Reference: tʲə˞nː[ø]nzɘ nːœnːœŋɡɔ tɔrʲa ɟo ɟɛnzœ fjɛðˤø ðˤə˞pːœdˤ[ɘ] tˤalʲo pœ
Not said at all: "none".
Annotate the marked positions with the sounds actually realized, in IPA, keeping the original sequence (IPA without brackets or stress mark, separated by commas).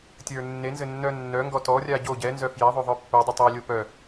e, ɘ